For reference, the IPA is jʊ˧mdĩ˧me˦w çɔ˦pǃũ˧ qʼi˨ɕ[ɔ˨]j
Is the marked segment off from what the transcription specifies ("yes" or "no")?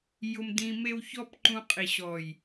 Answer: no